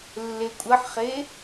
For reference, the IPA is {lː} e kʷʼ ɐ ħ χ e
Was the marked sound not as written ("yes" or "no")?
no